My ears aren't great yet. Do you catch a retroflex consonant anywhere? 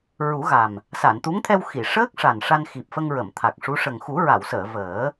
yes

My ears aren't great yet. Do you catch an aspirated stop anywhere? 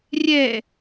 no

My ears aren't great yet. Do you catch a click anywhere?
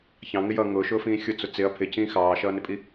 no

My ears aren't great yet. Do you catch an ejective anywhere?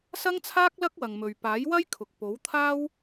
no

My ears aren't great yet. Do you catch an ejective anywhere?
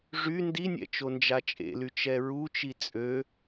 yes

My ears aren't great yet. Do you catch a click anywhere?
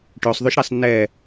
no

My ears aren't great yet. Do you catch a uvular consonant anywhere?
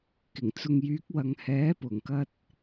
no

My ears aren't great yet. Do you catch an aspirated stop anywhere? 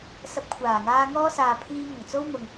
yes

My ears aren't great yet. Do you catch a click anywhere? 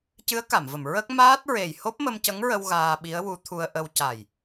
no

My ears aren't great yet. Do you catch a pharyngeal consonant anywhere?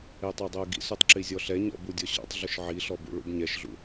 yes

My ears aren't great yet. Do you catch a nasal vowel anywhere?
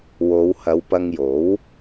no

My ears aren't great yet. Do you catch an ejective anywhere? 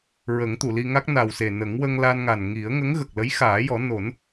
no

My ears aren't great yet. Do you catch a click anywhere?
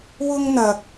no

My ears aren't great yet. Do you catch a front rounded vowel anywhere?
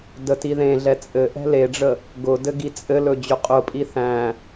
no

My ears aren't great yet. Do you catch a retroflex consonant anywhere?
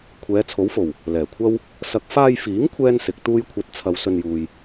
no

